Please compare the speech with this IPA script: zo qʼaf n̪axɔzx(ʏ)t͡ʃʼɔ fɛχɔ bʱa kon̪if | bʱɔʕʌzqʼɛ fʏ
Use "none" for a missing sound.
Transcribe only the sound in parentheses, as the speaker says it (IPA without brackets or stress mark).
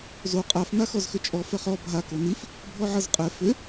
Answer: ʏ